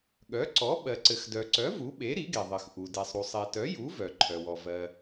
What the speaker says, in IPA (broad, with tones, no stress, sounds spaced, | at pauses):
ɠ œ˩˥ ǀ ɔ˩˥ ɓ ɜ˩ ǀ ɘ˩ x d œ˩ ǀ œ˩˥ v u˩˥ ɓ e˩˥ ɾ i˩˥ ɡ e˩ ðˤ ɘ˩ x ʔ u˩ d e˩ sˤ ɾ u˩ sˤ e˩ t œ˩˥ j u˩˥ v œ˩ ǃʰ œ˩ w ɔ˩ v ɜ˩